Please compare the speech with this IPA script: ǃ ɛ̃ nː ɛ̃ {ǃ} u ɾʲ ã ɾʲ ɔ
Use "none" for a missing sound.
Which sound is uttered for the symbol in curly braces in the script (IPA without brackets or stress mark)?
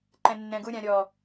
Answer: ɡ